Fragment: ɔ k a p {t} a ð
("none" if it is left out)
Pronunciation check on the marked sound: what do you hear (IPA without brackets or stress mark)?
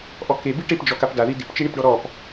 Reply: d